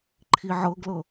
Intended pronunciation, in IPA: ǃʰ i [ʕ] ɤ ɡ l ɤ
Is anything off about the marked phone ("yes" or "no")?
no